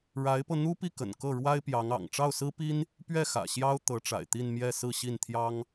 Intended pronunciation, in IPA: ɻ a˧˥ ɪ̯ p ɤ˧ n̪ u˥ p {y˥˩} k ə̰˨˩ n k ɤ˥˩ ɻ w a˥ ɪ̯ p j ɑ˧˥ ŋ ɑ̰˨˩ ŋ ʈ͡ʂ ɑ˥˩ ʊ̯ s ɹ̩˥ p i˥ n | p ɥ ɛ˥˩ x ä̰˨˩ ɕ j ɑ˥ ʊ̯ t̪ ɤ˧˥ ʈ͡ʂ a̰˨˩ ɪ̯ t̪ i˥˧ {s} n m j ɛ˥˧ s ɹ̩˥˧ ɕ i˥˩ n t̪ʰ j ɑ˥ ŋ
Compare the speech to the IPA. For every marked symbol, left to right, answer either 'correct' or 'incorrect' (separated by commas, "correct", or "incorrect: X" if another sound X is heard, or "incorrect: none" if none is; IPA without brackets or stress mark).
incorrect: i˥˩, incorrect: none